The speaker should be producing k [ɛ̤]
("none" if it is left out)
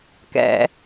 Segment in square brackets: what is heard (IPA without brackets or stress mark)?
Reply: ɛ̰